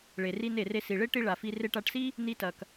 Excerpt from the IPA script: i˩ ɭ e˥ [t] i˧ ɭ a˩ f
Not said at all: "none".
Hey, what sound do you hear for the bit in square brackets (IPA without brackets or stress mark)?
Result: ʈ